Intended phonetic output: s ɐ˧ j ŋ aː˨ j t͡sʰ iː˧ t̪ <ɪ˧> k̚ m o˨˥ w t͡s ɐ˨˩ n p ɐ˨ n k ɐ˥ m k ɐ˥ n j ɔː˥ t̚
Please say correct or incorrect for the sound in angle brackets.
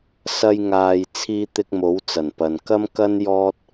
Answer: correct